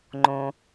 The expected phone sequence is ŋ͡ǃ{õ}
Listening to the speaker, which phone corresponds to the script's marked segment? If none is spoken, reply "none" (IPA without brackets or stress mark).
õ